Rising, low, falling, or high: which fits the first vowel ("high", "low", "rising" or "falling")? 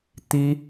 high